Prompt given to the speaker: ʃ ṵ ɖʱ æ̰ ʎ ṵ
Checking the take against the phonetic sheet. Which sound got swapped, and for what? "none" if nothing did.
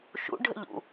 æ̰ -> ə̰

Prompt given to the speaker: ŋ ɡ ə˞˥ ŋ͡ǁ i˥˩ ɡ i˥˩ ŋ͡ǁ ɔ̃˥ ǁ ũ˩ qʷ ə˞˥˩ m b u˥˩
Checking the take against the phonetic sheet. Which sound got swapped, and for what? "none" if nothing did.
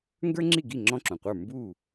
none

